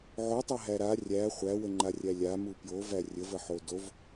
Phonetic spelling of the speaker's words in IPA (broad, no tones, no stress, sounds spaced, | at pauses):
ʕ o tˤ ɐ ɦ æ ɾ a rʲ æ χʷ æ w ə ŋ͡ǃ a rʲ æ lʲ a m u p j o v æ rʲ ə v ə ħ o d o v